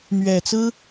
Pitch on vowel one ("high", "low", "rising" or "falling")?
low